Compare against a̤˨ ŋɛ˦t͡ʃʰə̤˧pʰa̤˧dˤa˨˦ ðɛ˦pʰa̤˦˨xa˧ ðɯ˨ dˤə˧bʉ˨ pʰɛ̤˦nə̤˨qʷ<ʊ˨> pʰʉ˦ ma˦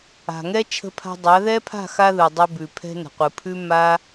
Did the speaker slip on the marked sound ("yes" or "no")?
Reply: yes